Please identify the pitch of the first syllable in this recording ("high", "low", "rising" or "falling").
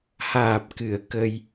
low